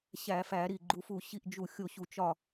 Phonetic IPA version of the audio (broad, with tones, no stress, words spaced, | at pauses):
ɕæ˧˩˧fæ˧˩˧ ɾi˧˩ɡ͡ǃu˨˥fu˧˩ ɕi˥˨ʔd͡ʒu˧˩xʲo˥˨ ɕu˧˩t͡ʃɒ˥˨